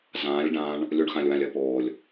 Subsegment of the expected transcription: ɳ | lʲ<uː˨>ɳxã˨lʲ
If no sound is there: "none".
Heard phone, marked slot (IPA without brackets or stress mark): u˨